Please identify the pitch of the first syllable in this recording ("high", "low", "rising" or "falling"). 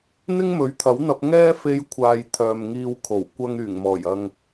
high